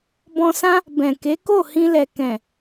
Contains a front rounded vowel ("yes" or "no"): no